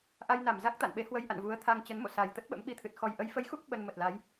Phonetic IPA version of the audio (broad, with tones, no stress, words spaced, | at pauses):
ʔa˧jna˧˩m za˦˥k̚t̪a̰˧˨nɓe˨˦ hwə˧jʔa̰˧˨nvu˨˦ə̯t̪ʰa˧ŋ t͡ɕə˨˦nmo̰˧˨sa˨˩j t̪ə˦˥t̚ɓə̰˧˥mɓi˧t̪ʰɨ˨˩t̚ xɔ˨˩jʔə˨˦jfə˨˦jxu˦˥k̚ ɓə˧nmə˨˩t̚la˨˦j